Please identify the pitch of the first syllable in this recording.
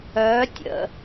rising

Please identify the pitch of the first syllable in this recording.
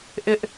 high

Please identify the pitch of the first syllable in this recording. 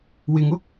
low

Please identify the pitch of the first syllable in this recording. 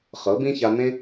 rising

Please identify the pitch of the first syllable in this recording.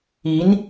rising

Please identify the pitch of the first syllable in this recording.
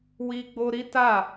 high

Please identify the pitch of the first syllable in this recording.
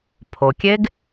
low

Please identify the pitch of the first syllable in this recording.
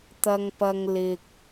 high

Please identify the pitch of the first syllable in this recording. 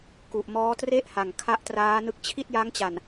low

